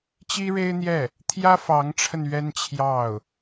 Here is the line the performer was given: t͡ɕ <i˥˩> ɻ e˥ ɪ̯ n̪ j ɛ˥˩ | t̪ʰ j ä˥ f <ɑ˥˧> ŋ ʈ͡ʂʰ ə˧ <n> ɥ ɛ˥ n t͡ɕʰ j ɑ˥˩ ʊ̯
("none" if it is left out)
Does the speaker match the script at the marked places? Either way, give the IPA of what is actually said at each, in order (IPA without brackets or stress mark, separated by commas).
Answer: i˥, ɑ˧˥, n